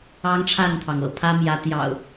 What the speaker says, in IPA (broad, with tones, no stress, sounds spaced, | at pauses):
ɑ˦ ŋ ʈ͡ʂʰ a˥˨ n t̪ʰ ɑ˩ ŋ ɤ̰˨˩ pʰ ä˦ m j ä˨˦ t̪ j ɑ̰˨˩ ʊ̯